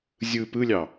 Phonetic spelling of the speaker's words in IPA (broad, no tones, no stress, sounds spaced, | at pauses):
zʲ ɯ p ɯ lʲ ɑ